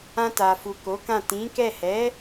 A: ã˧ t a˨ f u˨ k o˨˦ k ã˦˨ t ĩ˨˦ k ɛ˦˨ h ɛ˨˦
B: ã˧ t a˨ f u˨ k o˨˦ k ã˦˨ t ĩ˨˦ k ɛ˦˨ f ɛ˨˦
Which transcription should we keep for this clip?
A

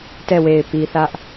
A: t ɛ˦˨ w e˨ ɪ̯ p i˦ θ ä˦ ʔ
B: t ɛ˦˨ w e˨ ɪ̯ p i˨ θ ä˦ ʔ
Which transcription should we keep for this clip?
B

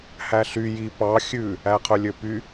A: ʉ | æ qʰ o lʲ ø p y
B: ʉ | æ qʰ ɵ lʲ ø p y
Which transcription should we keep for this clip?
B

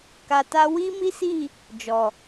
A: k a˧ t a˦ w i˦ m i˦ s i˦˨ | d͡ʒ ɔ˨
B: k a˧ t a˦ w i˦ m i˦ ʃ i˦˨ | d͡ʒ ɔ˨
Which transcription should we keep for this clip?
A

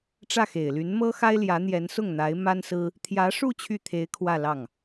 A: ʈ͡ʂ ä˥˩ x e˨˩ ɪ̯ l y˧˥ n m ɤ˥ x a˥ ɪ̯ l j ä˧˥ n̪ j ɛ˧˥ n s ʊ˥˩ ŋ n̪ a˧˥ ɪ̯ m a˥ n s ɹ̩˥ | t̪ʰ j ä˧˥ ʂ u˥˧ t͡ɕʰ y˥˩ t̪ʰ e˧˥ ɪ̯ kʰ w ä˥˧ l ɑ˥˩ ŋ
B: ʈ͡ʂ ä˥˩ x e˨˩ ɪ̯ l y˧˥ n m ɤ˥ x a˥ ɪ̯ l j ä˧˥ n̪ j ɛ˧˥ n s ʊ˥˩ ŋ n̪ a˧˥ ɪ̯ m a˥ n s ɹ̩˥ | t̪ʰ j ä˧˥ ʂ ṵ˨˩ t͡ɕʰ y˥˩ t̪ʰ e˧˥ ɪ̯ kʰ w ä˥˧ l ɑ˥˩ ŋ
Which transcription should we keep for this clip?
A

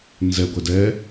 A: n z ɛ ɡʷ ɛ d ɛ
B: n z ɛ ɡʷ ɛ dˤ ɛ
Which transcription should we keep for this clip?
A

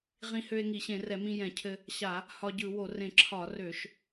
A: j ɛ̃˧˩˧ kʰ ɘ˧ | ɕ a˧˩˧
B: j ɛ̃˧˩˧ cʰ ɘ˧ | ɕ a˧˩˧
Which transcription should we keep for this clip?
B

